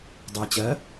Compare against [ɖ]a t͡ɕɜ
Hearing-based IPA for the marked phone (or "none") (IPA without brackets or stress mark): dˤ